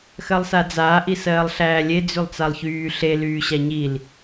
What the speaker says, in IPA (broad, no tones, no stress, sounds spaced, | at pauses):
x ɜ lˠ s a d͡z aː ʔ i s ɜː lˠ ɬ æː lʲ e d͡z y lˠ t͡s a lˠ ç yː ɬ e l yː ɕ a ɲ i l